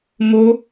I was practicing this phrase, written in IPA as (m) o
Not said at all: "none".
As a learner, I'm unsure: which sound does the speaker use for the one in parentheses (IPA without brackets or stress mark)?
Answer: m